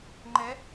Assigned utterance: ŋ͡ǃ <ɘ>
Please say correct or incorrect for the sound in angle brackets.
incorrect